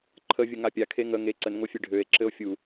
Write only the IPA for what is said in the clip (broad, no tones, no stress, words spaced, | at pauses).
ǃʰəvʲəŋa pʲakʰe ŋə ŋe ǀənŋofʲe ɖʱøe̯ǁɘo̯ fʲu